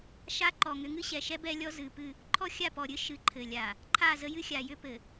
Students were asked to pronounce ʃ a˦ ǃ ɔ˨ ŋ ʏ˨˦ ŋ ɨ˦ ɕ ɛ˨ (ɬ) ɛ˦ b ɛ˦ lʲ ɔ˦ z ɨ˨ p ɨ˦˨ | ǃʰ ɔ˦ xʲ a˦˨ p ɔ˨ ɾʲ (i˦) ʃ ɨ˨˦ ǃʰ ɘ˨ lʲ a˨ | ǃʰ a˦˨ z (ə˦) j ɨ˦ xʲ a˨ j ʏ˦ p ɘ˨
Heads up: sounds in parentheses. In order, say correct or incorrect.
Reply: incorrect: ʃ, incorrect: ɨ˦, correct

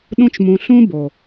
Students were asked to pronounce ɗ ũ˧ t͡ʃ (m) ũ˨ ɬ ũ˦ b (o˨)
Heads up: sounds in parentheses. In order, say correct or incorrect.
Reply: correct, correct

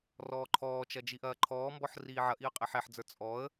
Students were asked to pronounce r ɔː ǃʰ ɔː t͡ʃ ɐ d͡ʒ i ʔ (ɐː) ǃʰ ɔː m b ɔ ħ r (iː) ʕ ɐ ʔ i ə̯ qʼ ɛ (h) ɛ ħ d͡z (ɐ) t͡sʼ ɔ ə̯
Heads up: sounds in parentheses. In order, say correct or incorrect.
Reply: correct, correct, incorrect: ħ, incorrect: ə˞

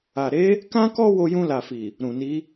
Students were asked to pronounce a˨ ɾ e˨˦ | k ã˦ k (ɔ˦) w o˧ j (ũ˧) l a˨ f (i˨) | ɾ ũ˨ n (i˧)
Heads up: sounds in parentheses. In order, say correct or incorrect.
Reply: correct, correct, correct, incorrect: i˨˦

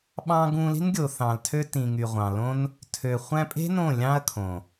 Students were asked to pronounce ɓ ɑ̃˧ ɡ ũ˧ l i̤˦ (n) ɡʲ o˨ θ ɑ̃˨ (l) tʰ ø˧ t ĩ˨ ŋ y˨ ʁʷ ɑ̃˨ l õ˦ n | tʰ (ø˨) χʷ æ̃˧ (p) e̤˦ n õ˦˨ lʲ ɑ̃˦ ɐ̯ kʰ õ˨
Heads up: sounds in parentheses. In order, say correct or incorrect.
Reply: correct, correct, correct, incorrect: pʼ

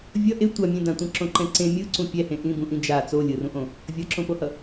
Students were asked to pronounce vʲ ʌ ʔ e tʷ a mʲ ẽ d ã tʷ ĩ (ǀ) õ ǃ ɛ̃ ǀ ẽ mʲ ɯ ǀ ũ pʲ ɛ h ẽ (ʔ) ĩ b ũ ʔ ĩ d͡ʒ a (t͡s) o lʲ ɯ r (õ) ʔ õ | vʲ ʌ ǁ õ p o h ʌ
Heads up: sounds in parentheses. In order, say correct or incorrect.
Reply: incorrect: ǁ, correct, correct, incorrect: ũ

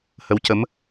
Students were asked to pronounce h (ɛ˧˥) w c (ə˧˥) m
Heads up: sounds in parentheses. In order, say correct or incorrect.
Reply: incorrect: ə˧˥, correct

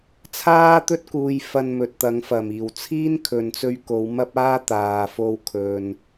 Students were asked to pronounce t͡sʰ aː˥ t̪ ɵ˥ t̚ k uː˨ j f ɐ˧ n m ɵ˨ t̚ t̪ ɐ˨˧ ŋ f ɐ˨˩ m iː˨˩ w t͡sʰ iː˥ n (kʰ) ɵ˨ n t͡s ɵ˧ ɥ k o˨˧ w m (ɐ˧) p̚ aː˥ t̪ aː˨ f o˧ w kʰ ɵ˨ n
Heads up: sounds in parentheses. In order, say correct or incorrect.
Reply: correct, incorrect: ɐ˥

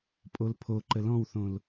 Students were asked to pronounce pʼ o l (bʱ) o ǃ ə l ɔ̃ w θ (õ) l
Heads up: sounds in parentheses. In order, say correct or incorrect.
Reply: incorrect: pʰ, correct

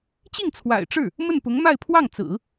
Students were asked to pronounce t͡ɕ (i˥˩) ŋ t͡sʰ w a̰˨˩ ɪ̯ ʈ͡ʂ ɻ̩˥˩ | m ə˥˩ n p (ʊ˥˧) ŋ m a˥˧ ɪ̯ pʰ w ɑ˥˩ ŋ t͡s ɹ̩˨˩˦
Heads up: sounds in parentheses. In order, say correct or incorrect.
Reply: correct, incorrect: ʊ˧˥

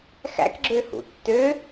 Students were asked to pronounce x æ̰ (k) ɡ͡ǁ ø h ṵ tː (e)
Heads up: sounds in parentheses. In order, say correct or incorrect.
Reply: correct, incorrect: ø

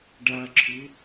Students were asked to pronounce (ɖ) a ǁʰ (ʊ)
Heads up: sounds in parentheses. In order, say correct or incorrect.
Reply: correct, correct

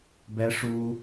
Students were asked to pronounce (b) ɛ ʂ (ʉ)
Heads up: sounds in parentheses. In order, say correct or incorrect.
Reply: correct, incorrect: u

